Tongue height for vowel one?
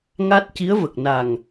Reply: low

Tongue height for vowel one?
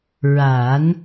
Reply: low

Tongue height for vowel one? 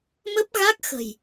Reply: mid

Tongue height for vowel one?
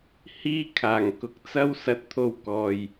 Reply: high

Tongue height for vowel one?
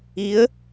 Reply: high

